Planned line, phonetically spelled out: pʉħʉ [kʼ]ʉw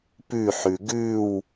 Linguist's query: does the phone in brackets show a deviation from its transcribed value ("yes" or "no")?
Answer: yes